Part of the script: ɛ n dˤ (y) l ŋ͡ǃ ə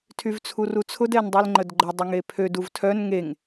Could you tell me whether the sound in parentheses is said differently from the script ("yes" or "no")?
no